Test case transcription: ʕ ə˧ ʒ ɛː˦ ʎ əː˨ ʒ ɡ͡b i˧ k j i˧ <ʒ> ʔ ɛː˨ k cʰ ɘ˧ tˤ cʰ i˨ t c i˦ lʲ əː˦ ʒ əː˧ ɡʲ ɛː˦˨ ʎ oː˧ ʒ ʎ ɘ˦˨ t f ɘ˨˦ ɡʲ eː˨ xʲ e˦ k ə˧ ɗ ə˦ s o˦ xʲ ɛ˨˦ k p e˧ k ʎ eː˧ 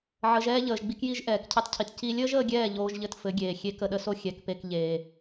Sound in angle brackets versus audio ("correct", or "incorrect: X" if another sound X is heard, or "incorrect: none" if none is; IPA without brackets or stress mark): correct